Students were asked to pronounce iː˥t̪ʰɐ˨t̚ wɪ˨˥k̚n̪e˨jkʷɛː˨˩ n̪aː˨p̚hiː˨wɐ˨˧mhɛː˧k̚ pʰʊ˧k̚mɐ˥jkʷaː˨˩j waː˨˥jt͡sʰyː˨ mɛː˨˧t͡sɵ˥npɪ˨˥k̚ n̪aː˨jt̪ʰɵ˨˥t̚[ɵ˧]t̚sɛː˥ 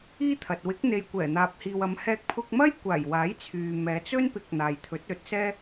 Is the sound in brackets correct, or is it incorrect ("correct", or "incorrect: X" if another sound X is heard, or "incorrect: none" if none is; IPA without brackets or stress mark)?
incorrect: ɵ˨˥